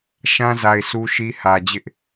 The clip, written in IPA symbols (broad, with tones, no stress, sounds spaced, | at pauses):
ʃ ã˦ z a˨ ɪ̯ s u˦ ʃ i˦ h ä˨ d͡ʑ ɪ˦ ʔ